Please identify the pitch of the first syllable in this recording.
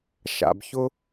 low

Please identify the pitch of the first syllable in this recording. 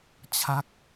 falling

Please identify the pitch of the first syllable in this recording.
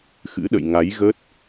rising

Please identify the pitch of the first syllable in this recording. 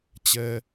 high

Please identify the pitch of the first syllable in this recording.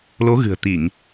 rising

